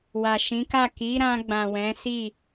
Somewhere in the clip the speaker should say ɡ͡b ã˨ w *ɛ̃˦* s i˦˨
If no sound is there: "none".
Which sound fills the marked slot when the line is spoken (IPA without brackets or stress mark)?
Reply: ɛ̃˨˦